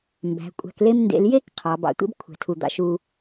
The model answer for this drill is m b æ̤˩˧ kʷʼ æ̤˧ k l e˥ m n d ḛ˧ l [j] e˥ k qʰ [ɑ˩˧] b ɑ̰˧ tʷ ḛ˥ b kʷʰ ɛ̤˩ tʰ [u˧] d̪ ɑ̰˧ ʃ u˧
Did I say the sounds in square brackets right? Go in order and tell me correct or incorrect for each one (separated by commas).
correct, correct, incorrect